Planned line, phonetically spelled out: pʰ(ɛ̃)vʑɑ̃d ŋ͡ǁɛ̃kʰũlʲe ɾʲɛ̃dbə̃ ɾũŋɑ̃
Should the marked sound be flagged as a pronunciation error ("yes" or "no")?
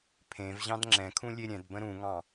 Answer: yes